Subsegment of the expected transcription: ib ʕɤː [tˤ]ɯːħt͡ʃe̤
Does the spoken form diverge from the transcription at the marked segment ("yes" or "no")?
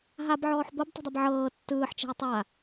yes